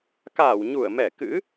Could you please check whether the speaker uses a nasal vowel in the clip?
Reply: no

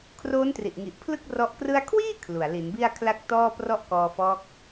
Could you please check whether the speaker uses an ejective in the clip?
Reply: no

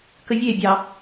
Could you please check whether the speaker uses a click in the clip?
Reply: no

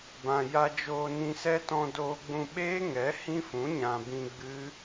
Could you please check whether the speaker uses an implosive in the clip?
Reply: yes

